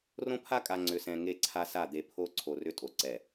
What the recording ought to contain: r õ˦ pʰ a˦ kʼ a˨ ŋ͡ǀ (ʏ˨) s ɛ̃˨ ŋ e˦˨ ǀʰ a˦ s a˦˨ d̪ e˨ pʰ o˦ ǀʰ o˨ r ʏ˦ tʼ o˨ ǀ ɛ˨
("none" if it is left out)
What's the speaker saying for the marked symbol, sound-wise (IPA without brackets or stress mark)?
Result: ʏ˨